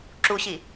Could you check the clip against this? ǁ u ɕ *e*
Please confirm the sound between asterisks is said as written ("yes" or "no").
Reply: no